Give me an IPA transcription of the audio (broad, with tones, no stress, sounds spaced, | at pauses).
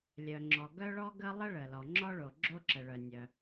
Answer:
lʲ œ˩ ŋ͡ǁ ɔ˩ ɡ œ˥ ɭ ɔ˥ ɡ ə˥ lˠ ə˥ ɭ ə˩ l ɔ˩ ŋ͡ǁ ɔ˥ ɭ o˩ ɡ͡ǁ o˥ ǁ ə˩ ɭ œ˩ nʲ œ˩